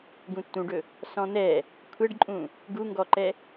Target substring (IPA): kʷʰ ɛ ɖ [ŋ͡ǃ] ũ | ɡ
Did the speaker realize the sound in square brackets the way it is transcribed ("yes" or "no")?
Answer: no